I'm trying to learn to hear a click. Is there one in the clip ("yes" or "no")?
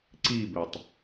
yes